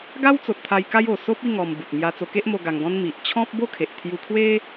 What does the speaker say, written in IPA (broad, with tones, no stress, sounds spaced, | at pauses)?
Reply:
ɡ a˦ w t͡s o˨ t̚ t̪ʰ a˧ j k a˦ j o˨˩ s o˦ p̚ i˥˧ ŋ ɔ˧ m b u˨ t̚ m j a˧ t͡s o˧ k e˦ ʔ m o˧ ɡ a˧ ŋ ɡ ɔ̃˦ n m i˨ ʔ t͡ɕʰ ɔ̃˦ p̚ b o˥˧ kʰ e˨ ʔ t̪ʰ j u˧ kʰ w e˦